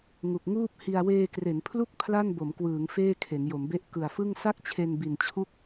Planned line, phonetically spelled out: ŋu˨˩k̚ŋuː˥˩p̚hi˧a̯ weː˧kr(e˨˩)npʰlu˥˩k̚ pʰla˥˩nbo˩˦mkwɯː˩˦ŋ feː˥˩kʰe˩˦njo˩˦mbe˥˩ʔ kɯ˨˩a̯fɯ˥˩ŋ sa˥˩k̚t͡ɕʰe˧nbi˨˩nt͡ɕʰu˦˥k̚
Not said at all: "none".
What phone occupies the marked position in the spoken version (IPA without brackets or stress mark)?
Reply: e˩˦